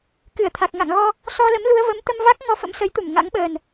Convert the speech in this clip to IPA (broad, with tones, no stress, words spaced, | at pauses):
kɨ˧˩ə̯t̪ʰa˨˩k̚ŋa̰˧˨ŋɣɔ˧ | sɔ˧lə˨˦m lu˧ə̯və˨˦mt̪ə˧mva˦˥k̚ ŋɔ˧fə̰˧˥msə˨˦jt̪u˧˩m ŋa̰˧˥ŋɓəː˨˩n